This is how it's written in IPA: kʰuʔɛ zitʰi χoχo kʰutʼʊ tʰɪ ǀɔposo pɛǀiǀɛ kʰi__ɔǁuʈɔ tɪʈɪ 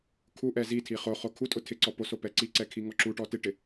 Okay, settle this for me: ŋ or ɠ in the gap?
ŋ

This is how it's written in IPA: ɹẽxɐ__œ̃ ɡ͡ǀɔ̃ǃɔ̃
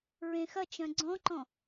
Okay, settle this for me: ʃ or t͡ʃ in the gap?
t͡ʃ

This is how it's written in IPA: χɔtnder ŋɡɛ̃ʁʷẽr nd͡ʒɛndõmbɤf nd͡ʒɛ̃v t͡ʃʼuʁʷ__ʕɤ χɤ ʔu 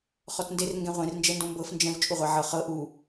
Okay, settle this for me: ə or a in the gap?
a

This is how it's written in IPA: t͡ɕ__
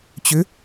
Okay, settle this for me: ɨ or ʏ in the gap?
ʏ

